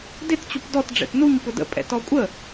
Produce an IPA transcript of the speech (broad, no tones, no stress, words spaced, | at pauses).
dɪt t͡ɕupdɔt ɖ͡ʐɛ̰tnuɲ pʊdə̰pʼɛ̰ tɔkʷʼə